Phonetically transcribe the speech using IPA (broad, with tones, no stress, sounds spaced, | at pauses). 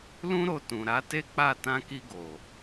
l ũ˦ ɾ o˦˨ t ũ˨ ɾ a˨˦ t e˦ k͡p a˦˨ t ã˧ k i˧ ɡ o˨